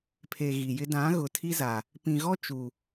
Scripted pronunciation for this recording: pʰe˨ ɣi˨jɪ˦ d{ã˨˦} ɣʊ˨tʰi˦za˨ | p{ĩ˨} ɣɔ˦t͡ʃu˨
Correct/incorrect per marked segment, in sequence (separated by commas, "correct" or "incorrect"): correct, correct